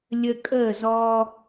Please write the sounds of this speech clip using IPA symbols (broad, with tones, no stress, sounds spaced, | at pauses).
lʲ ə˦ kʼ əː˥˨ z ɔ˦